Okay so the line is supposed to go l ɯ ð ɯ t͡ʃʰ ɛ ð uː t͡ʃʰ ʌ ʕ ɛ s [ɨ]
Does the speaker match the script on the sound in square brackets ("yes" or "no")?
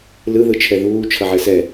no